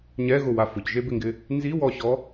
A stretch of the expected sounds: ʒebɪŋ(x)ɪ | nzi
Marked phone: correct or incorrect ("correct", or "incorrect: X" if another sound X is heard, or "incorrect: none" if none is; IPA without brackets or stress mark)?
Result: incorrect: ɡ